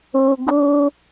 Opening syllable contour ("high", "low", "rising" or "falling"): low